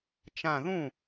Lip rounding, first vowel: unrounded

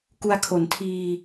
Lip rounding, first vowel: rounded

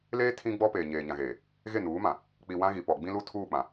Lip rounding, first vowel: unrounded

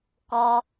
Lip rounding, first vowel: rounded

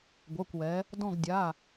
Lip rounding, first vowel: unrounded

